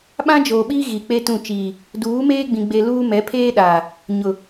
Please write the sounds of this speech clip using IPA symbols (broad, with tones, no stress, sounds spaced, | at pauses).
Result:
ɓ ã˦ d͡ʒ oː˨ ɓ iː˦ ɣ i˨ k͡p e˦ t ũ˦˨ t͡ʃ iː˨ | d uː˨˦ m eː˦ ɡ͡b ĩ˨ ɡ͡b e˨ l uː˦ m ɛ˨˦ pʰ eː˦ ɗ aː˨ | ɲ ʊ˨